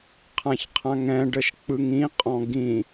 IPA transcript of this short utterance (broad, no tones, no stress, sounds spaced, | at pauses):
qʰ ã ç qʰ ã ŋ ɛ̃ ɖ ə ʃ k͡p ɯ ŋ ĩ qʼ ɔ̃ ɡ ĩ